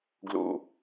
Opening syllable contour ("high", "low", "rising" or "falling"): low